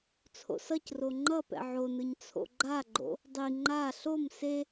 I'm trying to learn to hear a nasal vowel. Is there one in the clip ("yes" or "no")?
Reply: no